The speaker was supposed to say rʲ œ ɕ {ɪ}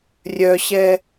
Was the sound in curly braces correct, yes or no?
no